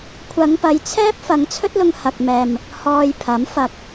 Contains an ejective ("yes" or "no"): no